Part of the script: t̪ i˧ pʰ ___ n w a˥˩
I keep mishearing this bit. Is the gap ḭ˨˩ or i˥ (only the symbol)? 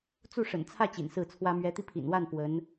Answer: ḭ˨˩